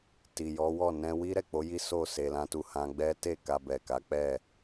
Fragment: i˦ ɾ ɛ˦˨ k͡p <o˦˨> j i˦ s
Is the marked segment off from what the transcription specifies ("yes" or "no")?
yes